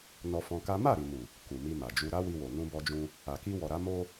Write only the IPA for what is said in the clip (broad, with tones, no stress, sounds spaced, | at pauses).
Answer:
n ɔ˧ f ɔ̃˧ k a˦ m a˦˨ ɾ i˨ m u˨ | k u˨ m i˧ m a˨ d͡ʒ u˧ ɾ a˦ w i˧ w o˨ n ũ˧ b ɔ˧ d͡ʒ ũ˧ | a˨ k i˧ w ɔ˨ ɾ a˨˦ m o˧